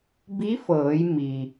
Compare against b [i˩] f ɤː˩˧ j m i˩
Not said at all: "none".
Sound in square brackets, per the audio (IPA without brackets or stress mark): i˧˥